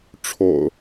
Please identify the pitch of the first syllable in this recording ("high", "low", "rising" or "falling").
low